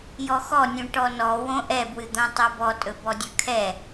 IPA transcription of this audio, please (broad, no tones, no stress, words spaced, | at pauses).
jɔxɔnʲũ ʈɔnɔ wõʔɛbwɨd̪õ tˤobɔtʼɵ bɔdʲɵkʰɛ